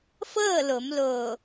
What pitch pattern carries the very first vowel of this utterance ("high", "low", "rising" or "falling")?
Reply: falling